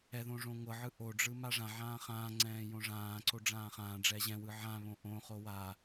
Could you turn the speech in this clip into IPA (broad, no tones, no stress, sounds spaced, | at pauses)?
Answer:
ɛ ð õ ʐ õ ŋʷ ɤ ʕ ɯ ʔ o ɖ͡ʐ ɯ m a ʐ ã ʕ ãː χ ãː ŋ͡ǀ ɛ̃ː j õ ʐ ãː ǀ o ɖ͡ʐ ãː χ ãː ɖ͡ʐ ɛ ʑ ɛ̃ w ɯ ʕ ã β õ ʔ õ χ o w a